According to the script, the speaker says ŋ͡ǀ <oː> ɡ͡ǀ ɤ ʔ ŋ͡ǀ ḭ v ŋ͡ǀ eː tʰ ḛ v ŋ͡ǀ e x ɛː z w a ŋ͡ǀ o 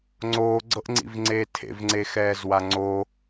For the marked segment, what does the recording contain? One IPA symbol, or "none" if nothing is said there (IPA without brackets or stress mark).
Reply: oː